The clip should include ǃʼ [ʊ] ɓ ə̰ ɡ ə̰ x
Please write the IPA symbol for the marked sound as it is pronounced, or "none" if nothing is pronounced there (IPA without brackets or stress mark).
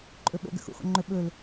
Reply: ɵ